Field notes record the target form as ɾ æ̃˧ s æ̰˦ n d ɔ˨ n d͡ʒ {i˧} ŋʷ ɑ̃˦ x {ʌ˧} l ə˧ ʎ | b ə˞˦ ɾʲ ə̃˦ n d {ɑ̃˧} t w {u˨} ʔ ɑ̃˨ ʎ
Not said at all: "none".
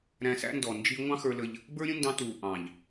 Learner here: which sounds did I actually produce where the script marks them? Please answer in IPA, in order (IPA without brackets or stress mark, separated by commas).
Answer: i˧, ə˞˧, ɑ̃˧, u˨